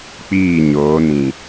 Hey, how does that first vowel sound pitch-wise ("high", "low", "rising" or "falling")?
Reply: falling